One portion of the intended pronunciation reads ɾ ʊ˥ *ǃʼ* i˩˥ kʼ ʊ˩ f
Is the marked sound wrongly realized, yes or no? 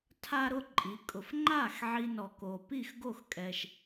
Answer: no